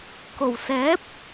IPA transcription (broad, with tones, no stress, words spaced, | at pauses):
ko˨˩w sɛː˨˥p̚